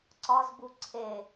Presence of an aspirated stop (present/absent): present